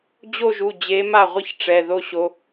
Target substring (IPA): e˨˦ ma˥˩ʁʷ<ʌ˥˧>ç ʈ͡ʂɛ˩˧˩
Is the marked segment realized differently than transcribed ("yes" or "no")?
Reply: no